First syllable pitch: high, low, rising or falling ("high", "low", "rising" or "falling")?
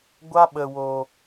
high